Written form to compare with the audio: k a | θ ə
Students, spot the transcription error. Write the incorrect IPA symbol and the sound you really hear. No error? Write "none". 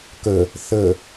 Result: a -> ə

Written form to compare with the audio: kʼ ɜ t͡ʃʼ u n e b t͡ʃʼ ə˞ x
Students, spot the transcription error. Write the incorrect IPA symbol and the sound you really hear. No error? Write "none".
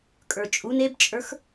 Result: ɜ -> ə˞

